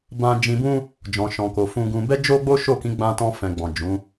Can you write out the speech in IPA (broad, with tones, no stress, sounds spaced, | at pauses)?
b ã˧ d͡ʒ ĩ˧ b ũ˦ | d͡ʒ ɔ̃˨ ʃ ɔ̃˨ k o˨ f ũ˧ ɡ ũ˧ b ɛ˦ d͡ʒ o˦ ɡ͡b o˦ ʃ o˦˨ k ĩ˨˦ ɡ͡b ã˧ t ɔ̃˧ f ɛ̃˨ ɡ͡b ɔ̃˨ d͡ʒ ũ˨˦